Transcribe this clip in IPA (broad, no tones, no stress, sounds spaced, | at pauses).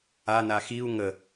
a n a x i u̯ ŋ ə